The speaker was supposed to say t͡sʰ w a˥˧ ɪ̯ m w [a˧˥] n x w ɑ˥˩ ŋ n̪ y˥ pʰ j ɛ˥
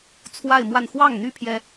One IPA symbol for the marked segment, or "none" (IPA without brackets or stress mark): a˥˧